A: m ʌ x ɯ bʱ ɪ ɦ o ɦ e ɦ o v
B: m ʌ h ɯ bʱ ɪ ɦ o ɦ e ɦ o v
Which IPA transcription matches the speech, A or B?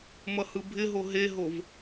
B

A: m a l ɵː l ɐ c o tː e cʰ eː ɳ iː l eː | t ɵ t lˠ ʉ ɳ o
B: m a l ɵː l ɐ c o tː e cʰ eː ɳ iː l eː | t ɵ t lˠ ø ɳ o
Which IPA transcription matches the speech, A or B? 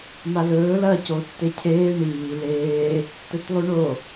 A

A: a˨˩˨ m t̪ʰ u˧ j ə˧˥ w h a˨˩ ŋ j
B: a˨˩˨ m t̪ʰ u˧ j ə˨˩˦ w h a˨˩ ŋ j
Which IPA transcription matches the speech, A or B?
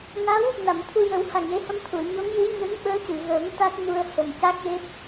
B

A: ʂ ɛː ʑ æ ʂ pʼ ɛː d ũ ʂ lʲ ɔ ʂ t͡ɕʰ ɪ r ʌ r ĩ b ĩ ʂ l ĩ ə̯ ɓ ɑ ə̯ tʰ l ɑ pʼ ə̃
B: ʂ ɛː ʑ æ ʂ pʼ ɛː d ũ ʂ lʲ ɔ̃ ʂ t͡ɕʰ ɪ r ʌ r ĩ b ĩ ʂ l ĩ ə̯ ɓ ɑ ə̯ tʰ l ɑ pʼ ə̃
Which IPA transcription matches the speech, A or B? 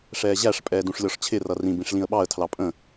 A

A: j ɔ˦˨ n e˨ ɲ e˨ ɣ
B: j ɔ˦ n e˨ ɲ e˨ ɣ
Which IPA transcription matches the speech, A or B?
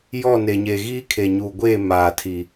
A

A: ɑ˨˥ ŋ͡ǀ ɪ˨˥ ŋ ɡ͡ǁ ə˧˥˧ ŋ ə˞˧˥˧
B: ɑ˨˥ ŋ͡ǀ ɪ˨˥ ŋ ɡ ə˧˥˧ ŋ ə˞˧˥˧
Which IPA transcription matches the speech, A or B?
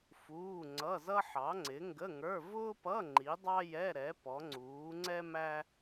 B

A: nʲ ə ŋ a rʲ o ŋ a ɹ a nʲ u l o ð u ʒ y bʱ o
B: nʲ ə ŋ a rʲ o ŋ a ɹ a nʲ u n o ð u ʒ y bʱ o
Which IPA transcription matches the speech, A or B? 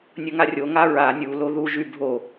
A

